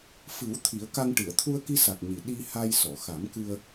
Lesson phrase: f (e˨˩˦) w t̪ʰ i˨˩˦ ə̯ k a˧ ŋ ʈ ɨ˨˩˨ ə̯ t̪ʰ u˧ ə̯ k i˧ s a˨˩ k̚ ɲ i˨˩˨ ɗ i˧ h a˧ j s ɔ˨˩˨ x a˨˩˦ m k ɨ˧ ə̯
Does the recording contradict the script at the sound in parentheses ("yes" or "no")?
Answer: yes